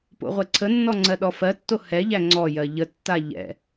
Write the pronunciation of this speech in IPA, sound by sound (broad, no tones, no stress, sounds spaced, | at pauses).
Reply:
p o̰ ʁʷ ɛ ǀʰ ə nː ɔ ŋ͡ǀ ɜ ɗ ɔ f ɜ tː o h ɛ ʎ æ ŋ͡ǀ ɔ j ɜ ʎ ə tː a ʎ ɛ̰